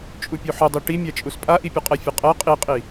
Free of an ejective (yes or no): no